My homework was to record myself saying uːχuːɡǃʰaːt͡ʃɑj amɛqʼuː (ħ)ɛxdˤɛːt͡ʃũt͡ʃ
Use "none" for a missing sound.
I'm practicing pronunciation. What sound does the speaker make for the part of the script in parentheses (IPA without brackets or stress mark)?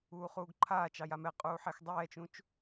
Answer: ħ